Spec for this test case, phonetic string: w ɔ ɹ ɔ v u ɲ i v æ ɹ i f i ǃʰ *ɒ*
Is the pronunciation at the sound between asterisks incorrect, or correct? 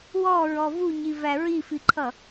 incorrect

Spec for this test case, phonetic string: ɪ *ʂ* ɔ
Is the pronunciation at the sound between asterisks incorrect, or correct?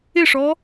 correct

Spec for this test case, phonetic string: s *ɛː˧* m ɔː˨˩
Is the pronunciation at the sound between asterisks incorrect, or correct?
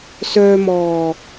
incorrect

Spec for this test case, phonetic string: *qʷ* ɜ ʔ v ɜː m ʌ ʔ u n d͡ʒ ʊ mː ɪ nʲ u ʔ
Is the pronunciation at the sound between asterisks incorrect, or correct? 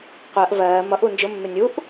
correct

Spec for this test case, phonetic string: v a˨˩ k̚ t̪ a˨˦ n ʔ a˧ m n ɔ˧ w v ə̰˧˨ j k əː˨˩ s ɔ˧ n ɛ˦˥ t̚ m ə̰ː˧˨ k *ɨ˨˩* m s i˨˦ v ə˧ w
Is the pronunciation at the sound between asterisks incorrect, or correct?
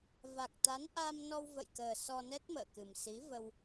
correct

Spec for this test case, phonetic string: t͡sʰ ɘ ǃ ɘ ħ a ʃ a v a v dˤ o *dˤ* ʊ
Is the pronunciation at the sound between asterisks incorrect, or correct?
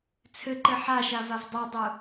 correct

